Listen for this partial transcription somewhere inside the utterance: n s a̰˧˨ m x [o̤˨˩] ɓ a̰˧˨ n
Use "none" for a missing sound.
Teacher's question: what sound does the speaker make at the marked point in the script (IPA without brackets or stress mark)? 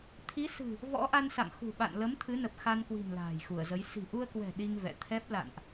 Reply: ṳ˨˩